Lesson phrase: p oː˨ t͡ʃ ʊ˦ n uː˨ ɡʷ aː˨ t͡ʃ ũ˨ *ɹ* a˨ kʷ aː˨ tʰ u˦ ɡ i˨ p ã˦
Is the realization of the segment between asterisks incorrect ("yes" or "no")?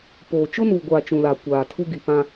yes